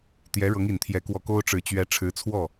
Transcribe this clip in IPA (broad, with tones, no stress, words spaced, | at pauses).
t̪jɛ˧˥ɻɤ˧˥ŋ i˨˩nt̪ʰjɛ˧˥kwɔ˧˥ ko˥ʊ̯ ʈ͡ʂɻ̩˨˩t͡ɕɥɛ˧˥ ʈ͡ʂʰɻ̩˧˥t͡sʰwɔ˥˩